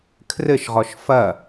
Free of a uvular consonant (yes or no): no